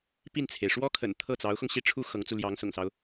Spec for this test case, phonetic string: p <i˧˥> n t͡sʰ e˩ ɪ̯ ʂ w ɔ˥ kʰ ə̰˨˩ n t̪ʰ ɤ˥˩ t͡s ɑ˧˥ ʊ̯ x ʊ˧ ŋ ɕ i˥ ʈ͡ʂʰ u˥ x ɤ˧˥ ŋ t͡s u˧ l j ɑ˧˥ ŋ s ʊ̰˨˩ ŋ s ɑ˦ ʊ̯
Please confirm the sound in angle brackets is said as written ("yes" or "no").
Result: no